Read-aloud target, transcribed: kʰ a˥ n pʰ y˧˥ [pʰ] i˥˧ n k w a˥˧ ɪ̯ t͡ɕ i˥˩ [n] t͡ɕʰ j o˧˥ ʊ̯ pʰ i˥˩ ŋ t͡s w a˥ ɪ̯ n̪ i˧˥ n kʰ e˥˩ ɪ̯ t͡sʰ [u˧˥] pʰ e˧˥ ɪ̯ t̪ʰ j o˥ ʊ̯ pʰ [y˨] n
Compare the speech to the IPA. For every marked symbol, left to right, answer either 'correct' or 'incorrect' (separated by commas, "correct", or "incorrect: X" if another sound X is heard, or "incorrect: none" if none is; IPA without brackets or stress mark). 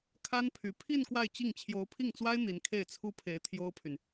correct, incorrect: ŋ, incorrect: u˥, correct